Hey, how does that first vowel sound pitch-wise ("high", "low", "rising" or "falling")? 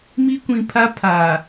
high